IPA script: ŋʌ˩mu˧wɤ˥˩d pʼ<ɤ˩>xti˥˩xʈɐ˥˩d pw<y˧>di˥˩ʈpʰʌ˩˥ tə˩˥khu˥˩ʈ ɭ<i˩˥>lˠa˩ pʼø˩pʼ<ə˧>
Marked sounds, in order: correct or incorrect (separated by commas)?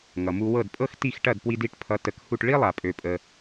incorrect, incorrect, incorrect, incorrect